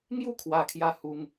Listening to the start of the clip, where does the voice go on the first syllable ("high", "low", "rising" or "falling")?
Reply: high